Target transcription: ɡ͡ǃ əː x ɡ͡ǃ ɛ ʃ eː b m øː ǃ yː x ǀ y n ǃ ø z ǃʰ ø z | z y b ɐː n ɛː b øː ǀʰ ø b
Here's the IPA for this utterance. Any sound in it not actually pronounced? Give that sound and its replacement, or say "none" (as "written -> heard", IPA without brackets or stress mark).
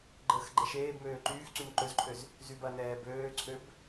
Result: none